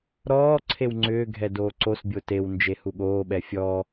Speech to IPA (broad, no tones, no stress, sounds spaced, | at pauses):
ɾ ɔː ǀʰ e w ŋ͡ǀ ʏː ɡʱ ɛ d oː ǀ o s bʲ o t e w n d͡ʒ e h u ɠ oː ɓ ɛ fʲ ɔ